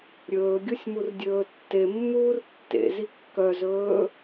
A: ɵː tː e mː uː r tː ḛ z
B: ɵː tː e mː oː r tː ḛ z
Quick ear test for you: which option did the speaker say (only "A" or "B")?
A